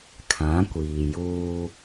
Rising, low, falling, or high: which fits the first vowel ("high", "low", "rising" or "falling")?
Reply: rising